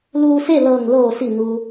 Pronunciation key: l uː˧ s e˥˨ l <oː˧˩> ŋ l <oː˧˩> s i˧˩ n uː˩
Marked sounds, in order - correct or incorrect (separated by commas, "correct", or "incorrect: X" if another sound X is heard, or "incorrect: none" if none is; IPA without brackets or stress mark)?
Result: incorrect: ɤː˧˩, correct